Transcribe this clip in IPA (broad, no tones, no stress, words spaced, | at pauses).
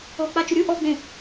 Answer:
ɔk͡pa t͡ʃʊɾʲu ʔɔɡ͡bẽ